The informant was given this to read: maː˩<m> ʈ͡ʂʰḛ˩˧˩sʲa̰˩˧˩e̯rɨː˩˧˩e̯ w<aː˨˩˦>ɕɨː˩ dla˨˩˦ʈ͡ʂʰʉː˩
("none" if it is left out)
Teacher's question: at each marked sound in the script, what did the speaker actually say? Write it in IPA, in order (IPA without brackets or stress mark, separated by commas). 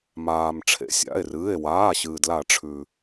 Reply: m, aː˩˧˩